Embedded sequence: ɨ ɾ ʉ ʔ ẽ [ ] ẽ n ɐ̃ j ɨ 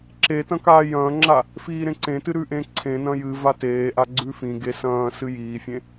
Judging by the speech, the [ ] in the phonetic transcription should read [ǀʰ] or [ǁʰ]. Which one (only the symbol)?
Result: ǀʰ